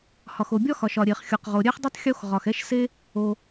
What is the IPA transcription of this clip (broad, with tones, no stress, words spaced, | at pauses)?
hɒ˩xo˩ bʲɒ˥xɒ˩ʃ ɒ˩ɾʲe˩χxʲɔ˩qʁo˩ ɾʲɛ˥χdˤɯ˥tˤ xʲo˥x ʁɒ˩x ɛ˥ʃ se˥ | o˩